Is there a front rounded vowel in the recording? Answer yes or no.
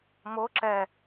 no